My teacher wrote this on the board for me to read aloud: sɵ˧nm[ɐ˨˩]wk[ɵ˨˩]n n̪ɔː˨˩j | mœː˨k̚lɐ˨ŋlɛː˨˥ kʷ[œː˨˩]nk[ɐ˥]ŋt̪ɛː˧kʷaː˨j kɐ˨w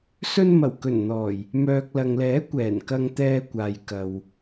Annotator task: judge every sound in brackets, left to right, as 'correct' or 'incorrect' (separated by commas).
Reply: correct, correct, incorrect, incorrect